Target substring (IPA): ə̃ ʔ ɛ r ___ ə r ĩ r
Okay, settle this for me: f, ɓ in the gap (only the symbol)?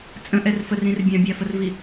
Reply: f